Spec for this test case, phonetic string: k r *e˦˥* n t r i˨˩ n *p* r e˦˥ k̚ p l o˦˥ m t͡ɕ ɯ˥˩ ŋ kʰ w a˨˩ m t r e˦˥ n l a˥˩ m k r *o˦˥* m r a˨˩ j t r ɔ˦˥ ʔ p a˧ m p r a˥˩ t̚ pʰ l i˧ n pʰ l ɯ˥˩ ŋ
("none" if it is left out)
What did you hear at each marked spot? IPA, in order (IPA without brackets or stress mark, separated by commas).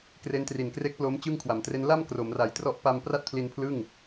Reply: e˦˥, k, o˩˦